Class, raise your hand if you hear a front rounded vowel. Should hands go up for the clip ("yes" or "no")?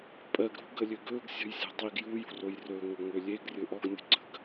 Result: yes